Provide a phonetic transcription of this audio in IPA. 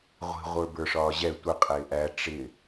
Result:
ʁʷ i̤ ʁʷ ə˞ b ə˞ ʂ ɒː ʑ ɛ tʷ ɪ qʼ ɪː ʔ æ ʈ͡ʂ ɪ

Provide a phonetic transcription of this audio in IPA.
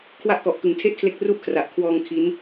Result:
kʰ w a˦˥ ʔ k ɔ˨˩ ʔ k ɯ˨˩ ŋ tʰ e˥˩ ʔ kʰ l e˦˥ k̚ r u˥˩ ʔ kʰ r a˨˩ ʔ kʰ w ɔː˧ ŋ kʰ i˦˥ n

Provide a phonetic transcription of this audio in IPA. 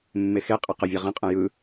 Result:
mː e x e qʼ ə q ə vʲ a ʁ ə̃ qʼ ə̃ j ɯ

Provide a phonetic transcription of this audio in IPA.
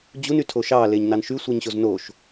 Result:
d͡ʑ u n y tʰ o ʃ ɑ l e ɲ n ɑ n ʃ y sʷ ɯ ɲ ɕ o z n o ʃ

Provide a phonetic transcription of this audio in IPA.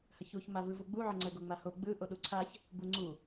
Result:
h ə ç u ç m a v ɯ v u ɡ͡b u ʕ ə ŋ͡ǀ ə ɡ o ŋ͡m a h o ɡ͡b ɯ ʔ o ɗ u ǀʰ a ç | b u ŋ͡ǀ u

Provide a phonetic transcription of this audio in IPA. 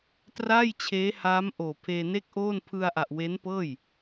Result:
t r aː˥˩ j t͡ɕʰ eː˦˥ h aː˦˥ m ʔ oː˨˩ pʰ eː˧ n e˥˩ k̚ ʔ oː˥˩ n pʰ ɯ˧ a̯ ʔ a˨˩ ʔ w e˦˥ n p ɤː˥˩ j

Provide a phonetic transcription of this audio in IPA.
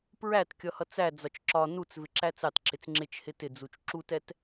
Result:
p ɹ æ t kʲ ʌ h ʌ t͡s æ d͡z ɒ t͡ʃ ǁ ɒ n u t͡s v ɪ ǁ æ t͡s ɑ t ǁ ɪ t͡s ŋ͡ǁ ɪ t͡ʃ h ɪ t ɪ d͡z u t͡ʃ ǁ u t ɛ t

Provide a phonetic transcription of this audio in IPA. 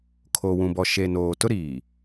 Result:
kʰ o˨ w ũ˨ b ɔ˨ ʃ e˨ n oː˨ t ʊ˦ ɾ iː˨

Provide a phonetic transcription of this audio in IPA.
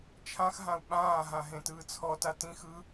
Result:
t͡ʃʰ ã x ɦ ã u̯ ɓ ãː ɦ ã ɦ ẽ t ɯː t͡sʰ ɔ t a t ĩ x ɯ

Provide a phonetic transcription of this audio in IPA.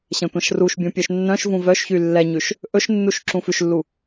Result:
ɕ ɛ̃ tʷ ɛ̃ ʃ r u ʃ bʲ ũ pʲ œ ʃ nː œ̃ ʃ v ũ v œ ʃ ç y lː ɛ ɲ ʉ ʃ | ʔ ɵ ʃ nː u ʃ ǁ ũ f ʉ ʃ lː u

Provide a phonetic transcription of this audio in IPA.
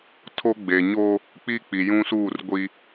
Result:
tʰ o˦ ɡ͡b e˨ ɲ o˦ | k͡p i˦ k͡p i˨ j ũ˦ s uː˦˨ r ɡʷ i˦

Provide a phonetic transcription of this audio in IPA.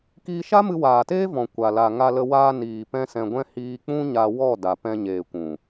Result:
k iː˧ ʃ a˦ m ɨ˧ w aː˨ t eː˦ v ɔ̃˨ kʷ a˨ l a˨ ŋ a˧ l ə˧ w aː˧ n iː˨ p ɛ̃˧ s ɛ̃˧ ɡʷ ɛ̃˦ h iː˧ k͡p ũ˦ ɲ a˧ w ɔ˦˨ d a˨ p ɛ̃˧ ɲ eː˨ kʷ ũ˨

